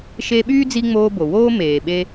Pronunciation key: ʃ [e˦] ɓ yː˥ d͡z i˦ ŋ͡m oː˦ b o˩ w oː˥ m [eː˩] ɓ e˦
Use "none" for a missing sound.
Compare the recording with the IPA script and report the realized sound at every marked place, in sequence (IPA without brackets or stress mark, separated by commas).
e˦, eː˩